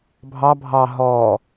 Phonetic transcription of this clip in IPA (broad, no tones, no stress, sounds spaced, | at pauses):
bʱ ɑ bʱ ɑ ɦ ɔ